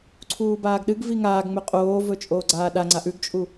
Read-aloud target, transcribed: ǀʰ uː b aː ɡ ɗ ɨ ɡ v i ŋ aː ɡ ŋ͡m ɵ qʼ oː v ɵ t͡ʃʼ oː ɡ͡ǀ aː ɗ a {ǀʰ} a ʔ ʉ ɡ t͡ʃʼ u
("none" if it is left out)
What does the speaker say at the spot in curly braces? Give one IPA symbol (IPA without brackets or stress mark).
ŋ͡ǀ